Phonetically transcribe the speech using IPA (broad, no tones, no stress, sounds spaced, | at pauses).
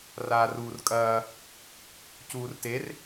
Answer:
r aː r uː r kʼ ɐː | c uː r t e r